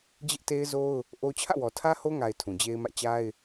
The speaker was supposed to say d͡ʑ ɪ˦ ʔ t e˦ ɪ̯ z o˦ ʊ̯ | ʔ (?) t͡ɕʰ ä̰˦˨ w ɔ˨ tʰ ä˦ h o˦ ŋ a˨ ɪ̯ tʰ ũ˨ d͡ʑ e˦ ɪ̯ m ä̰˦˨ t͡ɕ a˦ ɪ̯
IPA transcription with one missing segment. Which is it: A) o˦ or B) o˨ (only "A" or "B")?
A